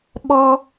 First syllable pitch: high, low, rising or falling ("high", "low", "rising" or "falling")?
high